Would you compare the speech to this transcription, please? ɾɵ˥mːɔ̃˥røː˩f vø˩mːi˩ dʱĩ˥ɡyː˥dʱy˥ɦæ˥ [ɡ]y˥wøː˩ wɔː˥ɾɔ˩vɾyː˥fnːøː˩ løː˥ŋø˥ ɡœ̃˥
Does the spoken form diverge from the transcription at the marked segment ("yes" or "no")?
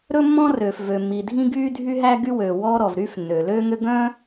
no